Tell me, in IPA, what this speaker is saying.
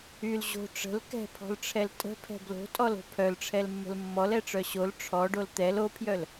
y l ʑ o̤ ʈ͡ʂ ə̤ l k ɛ̤ pʰ ɔ̤ l ʈ͡ʂʰ ɛ l tʼ ə̤ pʰ ɛ̤ b l o̤ tʼ ɔ l o̤ pʰ œ l ʈ͡ʂʰ ɛ l mː ə̤ l mː ɔ l ɛ ʈ͡ʂ œ ɕ o l ʈ͡ʂʰ ɔ ɖ o l t̪ ɛ l o pʰ j œ l

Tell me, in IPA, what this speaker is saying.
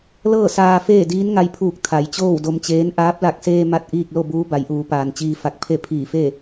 l ɤː˥˨ s aː˧ f eː˥˨ d iː˧˥ n ŋ a˧ j pʰ uː˧˩ k̚ t̪ʰ a˩˧ j t͡ɕ oː˥˨ w d o˧ m t͡ɕ eː˧˥ n ʔ aː˧˥ p̚ l a˧˩ k̚ s eː˧ m a˥˨ t̚ ʔ iː˥˨ k̚ l o˥˨ b uː˧˥ b a˩˧ j ʔ uː˩˧ p aː˩ n t͡ɕ iː˧ f a˧˩ k̚ pʰ e˥˨ pʰ iː˧˩ f e˥˨

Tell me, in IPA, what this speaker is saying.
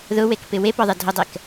ð ʊ w e k p ɪ w e p ɔ ðˤ e dʱ ʊ dˤ ɛ k

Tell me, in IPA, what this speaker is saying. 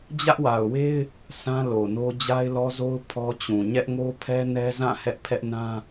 d͡ʑ ä˦ ʔ w a˨ ʊ̯ w e˦ ɪ̯ | s ã˦ l o˨ n o˦ d͡ʑ a˦ ɪ̯ l ɔ˦ z o˦ ʊ̯ pʰ ɔ˦ t͡ɕ ũ˨ ɲ ɛ˦ ʔ ŋ o˦ pʰ ɛ˦ n ɛ˦ z ã˦˨ h ɛ˦ ʔ pʰ ɛ˦ ʔ n ã˦

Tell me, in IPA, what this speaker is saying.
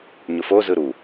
ɲ ʊ f o z ɯ ɾ u

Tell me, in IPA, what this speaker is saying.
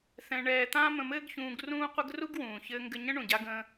θ ɛ̃˧ ɳ ɛː˧ t̪ ã˥ m ə̃˧ m ɘː˥ ɡ ç ũː˧ ɡ r ũː˥ qʷ ɘ˥ ɡ r u˥ ɡ w ũː˩ ç ɘː˧ ŋ ɡ ɘ˧ ɲ ə̃˥ ɳ ũ˩ ɟ a˧ ɡ ə̃ː˧

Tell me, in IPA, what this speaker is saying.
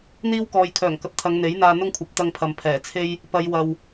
n̪ iː˥ w k ɔː˨ j kʰ œː˨˩ ŋ k ɐ˨ p̚ t̪ʰ ɐ˨˧ ŋ n̪ e˨˥ j n̪ aː˧ n̪ ʊ˥ ŋ kʷʰ ɐ˨˥ p̚ t̪ ɐ˧ ŋ pʰ ɐ˨ m pʰ ɛː˨˩ t͡sʰ e˥ j | p ɐ˨˧ j w ɐ˨ w

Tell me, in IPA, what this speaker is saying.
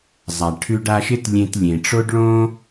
zˤ a˩ ʈʰ ʉ˧ ɖ a˧ ʃ ɪ˥ t lʲ ẽ˧ t lʲ ẽ˩ ʈ͡ʂ o˥ ɖ ɭ õ˥

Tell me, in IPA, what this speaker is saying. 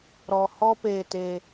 ɾ ɔ˨ h ɔ˦ p eː˧ t e˧

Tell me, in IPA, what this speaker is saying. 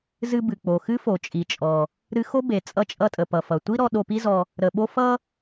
z ɨ˧ b ɨ˩ k͡p o˩ x ɨ˥ f o˩ t͡ʃʼ i˩ t͡ʃʼ ɔ˩ | ɾ ɨ˧ x o˥ b e˩ t͡sʼ ʌ˧ t͡ʃʼ ʌ˧ tʼ ə˩ p ʌ˩ f ʌ˩ tʷ i˥ ɾ ɔ˧ ɗ o˧ p i˥ z ɔ˧ | ɾ ə˩ ɓ o˧ f ʌ˥

